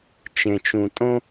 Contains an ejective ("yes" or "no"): yes